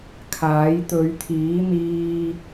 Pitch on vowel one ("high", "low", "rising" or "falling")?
rising